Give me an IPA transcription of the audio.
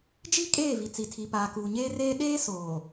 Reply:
d͡ʒ i˦ kʼ eː˦˨ v i˨ t͡s i˨ tʰ i˨ p aː˨ k uː˨ ɲ eː˦ r eː˦ ɗ eː˦ s oː˨

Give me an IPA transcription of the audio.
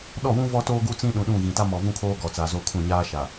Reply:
ɗ ɔ˦˨ w ũ˦ v ɔ˦ t oː˦ ɡ u˦ t͡s ĩ˦ ɗ ũ˨ ɗ ũ˦˨ ɣ ĩ˨ t a˦ m ɔ˨ v ũ˦ kʰ oː˦ ɡ ɔ˨ t͡s aː˨ z o˦ kʰ ũ˦˨ ɲ aː˦ ʃ a˨

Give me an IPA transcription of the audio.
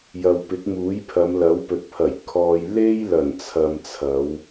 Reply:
j ɐ˨ w p ɪ˨˥ k̚ m uː˨˥ j pʰ ɐ˨˧ m l ɐ˨˥ w p ɵ˨˥ t̚ pʰ ɐ˨˩ j kʰ ɔː˨ j l e˥ j l ɐ˨˩ n t͡sʰ ɐ˨ m t͡sʰ ɐ˨˧ w

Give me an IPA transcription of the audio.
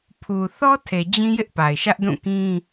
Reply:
pʰ u˨ θ ɔ˦ tʰ e˨ d͡ʑ ĩ˦ j ɪ˦ ʔ p a˨ ɪ̯ ʃ ä˦ ʔ d ũ˦˨ k ĩ˦

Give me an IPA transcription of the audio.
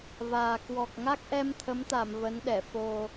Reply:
v aː˨˩ k w ɔ˨˩ k̚ ŋ a˦˥ k̚ ʔ ɛ˧ m t̪ʰ ə˨˦ m t̪ a˧˩ m v ə˨˦ n ɗ ɛ˧˩ f o˨˩

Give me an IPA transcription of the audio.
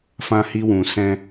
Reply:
f ã˧ h i˧ w ũ˨ s ɛ̃˧

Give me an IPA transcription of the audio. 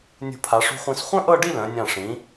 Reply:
nʲ ṳ˧˩ pʰ a˩˧ ʂ ṳ˧ χʷ ĩ˧ s χʷ œ̃˥ ʔ ɤ˥˧ ɖ i˥˧ l œ̃˩˧ nʲ ã˧˩ ʂ ĩ˩˧

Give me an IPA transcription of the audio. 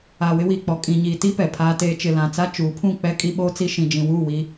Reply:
aː˨ w ɪ˦ w iː˨ k͡p ɔ˨ kʼ ĩ˨ ɲ iː˨ t i˦ p ɛ˨ pʰ aː˦ t eː˦ t͡ʃ ɪ˨ l ã˨ t͡s a˦ t͡ʃ uː˨˦ pʰ ũ˦˨ k͡p ɛ˦ kʼ i˦ ɓ oː˦ t͡s i˦ ʃ ĩ˨ d͡ʒ ĩ˨ w uː˦˨ w i˦

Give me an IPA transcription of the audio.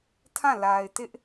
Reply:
tʰ ã˦˨ l a˨ ɪ̯ t ɪ˦ ʔ

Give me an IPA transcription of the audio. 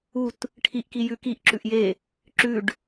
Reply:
u t | ʈʰ i ʔ k i j ʉ k i ʔ ǁ ʉ ʔ j e | ǁ ʉ ɖ

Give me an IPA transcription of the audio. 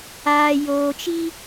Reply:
aː˨ j oː˨ t͡ʃ i˦

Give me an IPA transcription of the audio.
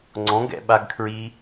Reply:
ŋ͡ǀ ɔ̃ ɡ ɛ̰ ɓ a ɡ kʰ ɹ i

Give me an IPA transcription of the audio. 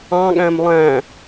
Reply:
ɑ̃ ɠ æ̃ m lˠ æ̃

